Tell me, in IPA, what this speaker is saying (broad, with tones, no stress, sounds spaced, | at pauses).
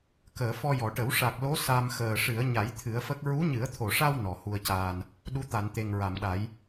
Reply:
k əː˨˩˨ f ɔ˧ j ɔ˨˩˨ ʈ ə˨˩˦ w ʂ a˨˩ k̚ l o˧˥ s a˧ m x əː˨˩ ʂ ɨ˨˩˦ ə̯ ɲ a˨˩˦ j t̪ʰ ɨ˨˩˦ ə̯ f ə˦˥ k̚ ɹ u˧˥ ɲ ɨ˨˩˦ ə̯ t̪ʰ o˨˩ ʂ a˧ w n ɔ˨˩˨ h u˧ ə̯ c aː˧ n | ɗ u˧˥ t̪ a˨˩˨ n t̪ e˨˩ ŋ ɹ a˨˩˨ m ɗ a˨˩˦ j